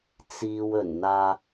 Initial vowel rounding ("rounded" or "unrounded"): unrounded